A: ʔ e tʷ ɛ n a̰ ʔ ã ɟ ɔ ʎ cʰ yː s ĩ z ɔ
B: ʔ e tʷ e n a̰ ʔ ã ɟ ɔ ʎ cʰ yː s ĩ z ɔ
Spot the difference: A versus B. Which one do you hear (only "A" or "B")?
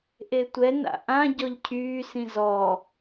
A